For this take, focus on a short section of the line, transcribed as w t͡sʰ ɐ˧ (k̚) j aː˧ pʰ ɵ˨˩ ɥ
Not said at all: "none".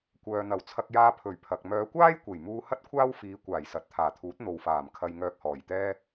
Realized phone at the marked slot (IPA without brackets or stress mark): k̚